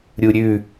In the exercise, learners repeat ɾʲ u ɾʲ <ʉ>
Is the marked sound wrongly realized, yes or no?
no